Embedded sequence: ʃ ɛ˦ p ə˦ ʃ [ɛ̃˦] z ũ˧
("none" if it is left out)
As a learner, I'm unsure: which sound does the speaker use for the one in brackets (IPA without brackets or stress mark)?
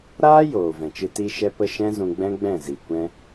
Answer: ɛ̃˦